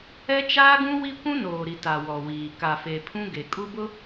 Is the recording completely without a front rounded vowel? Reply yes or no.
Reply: yes